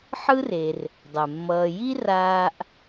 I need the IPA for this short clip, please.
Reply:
ħ ɯ˥ r e˨ r | dˤ ɛ˩ mː ʌː˨ j i˥ r aː˦ ʔ

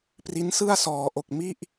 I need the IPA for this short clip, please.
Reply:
p r i˦˥ n s ɯ˥˩ a̯ s ɔː˩˦ ʔ o˨˩ k̚ m i˥˩ ʔ

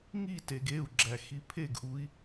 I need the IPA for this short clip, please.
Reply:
ŋ i t e ɡ e u̯ ɡ͡ǁ æ x i pʰ e ɡ ʔ u i̯

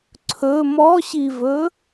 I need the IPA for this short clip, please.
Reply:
ǀʰ ɵ m ɔ ɕ i v ɵ

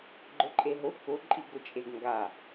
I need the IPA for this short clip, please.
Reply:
ɡ͡ǃ ʊ ǃʼ e ɦ ʊ k ʊ ǃʼ i ɡ ʊ t͡ʃʼ e ɡ ŋ ɡ a

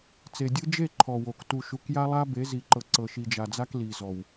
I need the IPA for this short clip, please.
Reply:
t͡s e˨ dʲ ɯ˦ d͡ʒ e˦˨ ǃʰ ɔ˨ w o˨ k t u˨ ʃ u˨ k j a˦ lˠ a˦ b e˨˦ z i˨ ǃ ɤ˨ ǀ ɤ˨ ʃ i˨ d͡ʒ a˨ d͡z a˦ k l i˨ z ɔ˨ w

